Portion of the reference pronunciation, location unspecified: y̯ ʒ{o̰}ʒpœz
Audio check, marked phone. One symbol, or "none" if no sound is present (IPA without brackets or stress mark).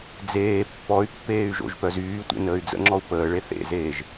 o̰